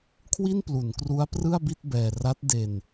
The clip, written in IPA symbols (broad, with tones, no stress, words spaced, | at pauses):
kʰwi˥˩nplu˩˦nkru˦˥a̯ prɯ˥˩a̯bi˥˩t̚ bɛː˧ ra˦˥t̚de˧n